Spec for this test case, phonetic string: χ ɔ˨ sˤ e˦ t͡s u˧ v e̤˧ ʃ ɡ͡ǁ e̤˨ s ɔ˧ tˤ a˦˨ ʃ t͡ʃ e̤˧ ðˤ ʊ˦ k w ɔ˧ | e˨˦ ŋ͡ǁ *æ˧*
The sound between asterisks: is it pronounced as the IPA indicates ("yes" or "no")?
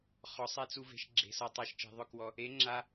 no